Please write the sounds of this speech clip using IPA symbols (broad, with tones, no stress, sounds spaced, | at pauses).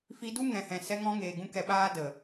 f i˧ d u˦ ŋ ɛ̃˨ h ɛ̃˨ s ɛ˧ ŋ ɔ̃˧ ŋ eː˨ ɡ ũ˧ k ɛ˧ ɓ aː˦ d ə˨